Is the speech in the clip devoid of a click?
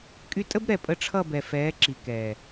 no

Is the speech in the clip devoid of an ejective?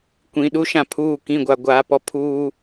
yes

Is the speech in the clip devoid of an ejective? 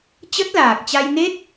yes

